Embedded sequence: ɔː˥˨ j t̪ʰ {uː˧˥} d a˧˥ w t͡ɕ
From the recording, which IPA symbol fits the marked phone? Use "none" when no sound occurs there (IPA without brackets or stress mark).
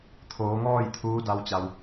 uː˧˥